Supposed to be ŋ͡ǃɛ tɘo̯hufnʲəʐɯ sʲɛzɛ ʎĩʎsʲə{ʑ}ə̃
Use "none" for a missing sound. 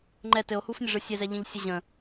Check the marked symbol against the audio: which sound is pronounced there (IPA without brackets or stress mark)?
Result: ʑ